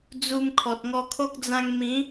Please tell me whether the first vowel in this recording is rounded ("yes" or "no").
yes